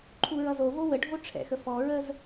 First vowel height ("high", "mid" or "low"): high